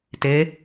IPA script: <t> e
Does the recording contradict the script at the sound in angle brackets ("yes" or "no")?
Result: no